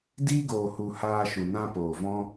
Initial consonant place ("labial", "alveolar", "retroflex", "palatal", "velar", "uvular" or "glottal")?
alveolar